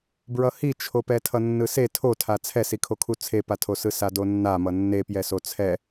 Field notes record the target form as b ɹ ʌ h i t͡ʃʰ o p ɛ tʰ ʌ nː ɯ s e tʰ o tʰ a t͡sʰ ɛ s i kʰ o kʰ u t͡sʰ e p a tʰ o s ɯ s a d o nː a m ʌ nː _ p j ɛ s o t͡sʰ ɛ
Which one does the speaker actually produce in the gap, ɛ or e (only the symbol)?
e